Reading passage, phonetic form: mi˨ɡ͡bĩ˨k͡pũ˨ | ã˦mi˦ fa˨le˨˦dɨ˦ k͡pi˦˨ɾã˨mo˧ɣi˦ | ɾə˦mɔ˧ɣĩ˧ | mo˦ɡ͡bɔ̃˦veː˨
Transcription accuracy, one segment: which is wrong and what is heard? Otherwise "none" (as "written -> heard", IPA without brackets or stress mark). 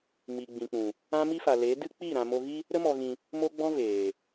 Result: none